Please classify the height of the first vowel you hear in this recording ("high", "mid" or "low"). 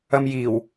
low